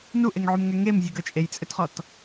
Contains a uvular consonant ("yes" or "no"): yes